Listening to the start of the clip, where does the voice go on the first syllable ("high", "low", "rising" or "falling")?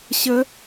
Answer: rising